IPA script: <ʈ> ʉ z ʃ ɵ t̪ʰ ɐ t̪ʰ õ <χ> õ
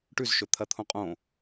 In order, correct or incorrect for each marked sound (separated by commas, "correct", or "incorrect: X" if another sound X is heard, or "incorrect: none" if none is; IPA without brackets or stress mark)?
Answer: correct, incorrect: qʼ